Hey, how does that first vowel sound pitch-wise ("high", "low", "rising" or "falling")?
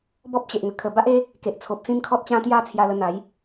high